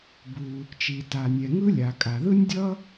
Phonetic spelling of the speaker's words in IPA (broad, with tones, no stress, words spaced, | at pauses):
bu˩ | t͡ʃi˩ta˩ nʲɛ˩ŋɯ˥ lʲa˩kʼa˩ ðɯ˥nʲdʲʌ˥